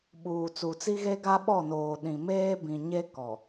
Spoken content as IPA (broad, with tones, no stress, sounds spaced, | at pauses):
ɓ uː˨ t͡s u˨ t͡s i˦ ɣ e˦ ɡ a˦ ɓ ɔ˦˨ n oː˨ ɗ ĩ˨ m eː˦ b ĩ˨ ɲ e˦ k ɔ˨